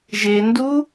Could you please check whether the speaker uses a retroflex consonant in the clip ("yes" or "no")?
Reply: no